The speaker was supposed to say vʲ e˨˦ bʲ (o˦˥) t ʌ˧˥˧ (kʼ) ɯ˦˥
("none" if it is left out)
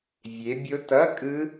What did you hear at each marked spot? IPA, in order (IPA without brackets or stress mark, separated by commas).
o˦˥, kʼ